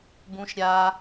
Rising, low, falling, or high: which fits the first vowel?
high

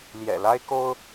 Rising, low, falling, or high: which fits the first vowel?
low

